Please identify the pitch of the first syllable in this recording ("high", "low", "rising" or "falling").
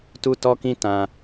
high